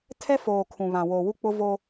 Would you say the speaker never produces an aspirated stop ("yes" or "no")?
no